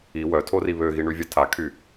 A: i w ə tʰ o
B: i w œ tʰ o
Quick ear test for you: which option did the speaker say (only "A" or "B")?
B